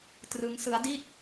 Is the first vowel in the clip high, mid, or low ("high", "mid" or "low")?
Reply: high